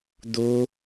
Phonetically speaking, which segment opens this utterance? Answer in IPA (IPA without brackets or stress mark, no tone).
d̪